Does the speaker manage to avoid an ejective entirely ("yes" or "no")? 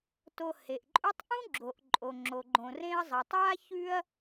no